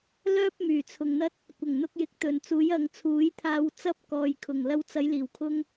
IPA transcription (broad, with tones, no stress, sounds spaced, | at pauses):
l œː˥ p̚ m yː˨˩ t͡sʰ ʊ˨ ŋ n̪ ɐ˥ t̚ | kʷ ɐ˨˩ ŋ n̪ ʊ˧ k̚ j ɪ˨˥ k̚ t̪ ɵ˨˩ n t͡s uː˨˥ j ɐ˨ ŋ t͡sʰ uː˨˥ j t̪ʰ aː˧ w t͡s ɐ˥ p̚ k ɔː˨ j kʰ ʊ˨˩ ŋ l ɐ˧ w t͡s ɐ˨˧ j l iː˨˩ w kʰ ʊ˧ ŋ